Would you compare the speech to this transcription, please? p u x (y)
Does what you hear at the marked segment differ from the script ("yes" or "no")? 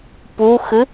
yes